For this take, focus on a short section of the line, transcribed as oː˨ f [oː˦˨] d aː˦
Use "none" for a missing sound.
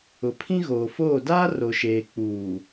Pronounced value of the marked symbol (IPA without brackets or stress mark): oː˦˨